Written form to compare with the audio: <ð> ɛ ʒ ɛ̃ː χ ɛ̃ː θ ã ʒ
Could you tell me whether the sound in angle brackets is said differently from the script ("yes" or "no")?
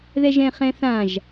no